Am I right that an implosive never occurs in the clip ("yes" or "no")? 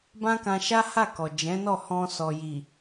yes